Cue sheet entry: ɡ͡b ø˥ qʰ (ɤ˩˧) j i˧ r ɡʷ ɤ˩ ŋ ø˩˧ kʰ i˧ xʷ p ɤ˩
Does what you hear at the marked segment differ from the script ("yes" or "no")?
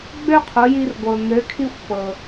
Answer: yes